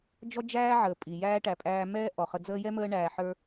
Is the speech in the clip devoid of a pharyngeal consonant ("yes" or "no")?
no